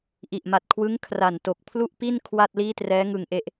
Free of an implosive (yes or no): yes